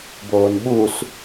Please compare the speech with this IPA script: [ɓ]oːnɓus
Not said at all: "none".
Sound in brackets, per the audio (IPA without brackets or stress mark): b